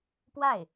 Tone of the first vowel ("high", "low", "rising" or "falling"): falling